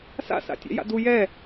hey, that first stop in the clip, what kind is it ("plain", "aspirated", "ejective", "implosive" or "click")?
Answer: plain